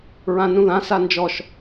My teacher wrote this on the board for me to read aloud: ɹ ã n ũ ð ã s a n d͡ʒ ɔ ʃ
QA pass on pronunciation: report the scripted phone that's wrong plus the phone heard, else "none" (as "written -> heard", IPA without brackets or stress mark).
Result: none